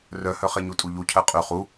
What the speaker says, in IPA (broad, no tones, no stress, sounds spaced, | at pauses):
r œ h œ χ e ɲ u tʼ u ʎ u cʰ ɜ qʼ y χ u